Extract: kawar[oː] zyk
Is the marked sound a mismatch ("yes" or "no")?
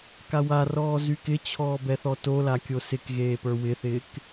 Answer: yes